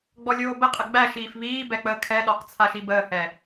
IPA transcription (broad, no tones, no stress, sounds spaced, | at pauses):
ɡ͡b ɔ lʲ oː b ə qʼ ə ɡ͡b æ ʃ iː f β iː b ɛ k͡p əː kʰ ɛ ɗ ɔ q t͡sʰ a ʃ i b əː h ɛ